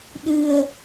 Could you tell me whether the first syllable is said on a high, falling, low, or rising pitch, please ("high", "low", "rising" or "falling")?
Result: low